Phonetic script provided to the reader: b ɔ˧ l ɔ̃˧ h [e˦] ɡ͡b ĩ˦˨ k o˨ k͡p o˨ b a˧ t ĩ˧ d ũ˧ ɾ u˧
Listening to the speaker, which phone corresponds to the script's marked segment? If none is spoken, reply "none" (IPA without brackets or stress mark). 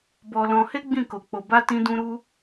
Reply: e˦